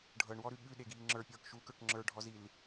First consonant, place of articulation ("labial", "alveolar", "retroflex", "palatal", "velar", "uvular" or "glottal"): retroflex